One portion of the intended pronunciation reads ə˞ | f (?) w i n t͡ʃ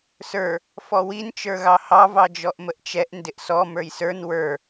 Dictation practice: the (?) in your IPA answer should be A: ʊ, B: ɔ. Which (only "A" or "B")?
B